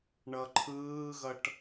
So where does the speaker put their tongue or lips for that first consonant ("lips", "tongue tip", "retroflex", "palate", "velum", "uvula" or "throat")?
retroflex